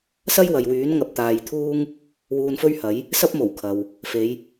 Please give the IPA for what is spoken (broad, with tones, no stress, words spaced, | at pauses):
sɐ˥jwɐ˨jwyː˨˥n ŋɐ˨p̚t̪aː˨jt̪ʰuː˥ŋ | wuː˧nfɵ˥ɥhɐ˨˥j | sɐ˥p̚mo˨˩w kʰɐ˨w | fe˨˧j